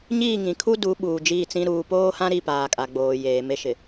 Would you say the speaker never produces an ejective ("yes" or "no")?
no